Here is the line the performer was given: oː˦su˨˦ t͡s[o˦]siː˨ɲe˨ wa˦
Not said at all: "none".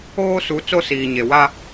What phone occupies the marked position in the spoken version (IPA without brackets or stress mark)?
o˦